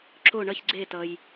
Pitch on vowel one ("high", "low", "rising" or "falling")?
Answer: falling